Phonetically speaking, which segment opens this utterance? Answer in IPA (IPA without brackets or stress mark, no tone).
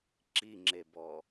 ǁ